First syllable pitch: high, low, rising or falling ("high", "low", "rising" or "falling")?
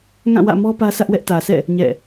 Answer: falling